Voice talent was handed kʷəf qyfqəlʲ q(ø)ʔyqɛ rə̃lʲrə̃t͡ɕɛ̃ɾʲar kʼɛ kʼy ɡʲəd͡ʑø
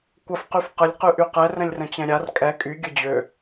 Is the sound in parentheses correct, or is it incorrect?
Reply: incorrect